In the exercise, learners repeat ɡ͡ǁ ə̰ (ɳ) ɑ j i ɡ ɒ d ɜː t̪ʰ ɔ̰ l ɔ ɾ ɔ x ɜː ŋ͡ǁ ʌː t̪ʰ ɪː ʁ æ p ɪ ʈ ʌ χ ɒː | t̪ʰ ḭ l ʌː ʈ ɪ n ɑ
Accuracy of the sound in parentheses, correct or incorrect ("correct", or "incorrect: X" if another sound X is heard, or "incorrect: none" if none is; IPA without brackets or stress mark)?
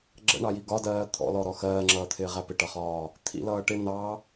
correct